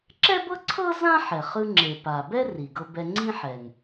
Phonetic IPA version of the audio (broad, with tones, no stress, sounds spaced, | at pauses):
ǁ ɛ˥ b ɤ˥ ǀʰ ɤ˥ z ã˥ ħ ɛ˩ χ ɯ˧ ŋ͡ǁ e˩ p a˩ b ɛ˥ r i˩ ɡ ɤ˧ b ɛ˧ ŋ͡ǀ ĩ˥ ħ ɛ˩ ŋ